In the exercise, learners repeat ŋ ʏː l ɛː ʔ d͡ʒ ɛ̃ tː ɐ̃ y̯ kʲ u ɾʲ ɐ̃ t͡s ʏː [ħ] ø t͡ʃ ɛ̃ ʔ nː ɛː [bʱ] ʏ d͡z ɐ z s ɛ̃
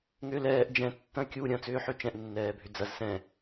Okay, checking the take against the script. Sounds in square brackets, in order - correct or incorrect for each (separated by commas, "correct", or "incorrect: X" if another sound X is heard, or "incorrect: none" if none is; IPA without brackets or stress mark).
correct, correct